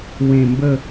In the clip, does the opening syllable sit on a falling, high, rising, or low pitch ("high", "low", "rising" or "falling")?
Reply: low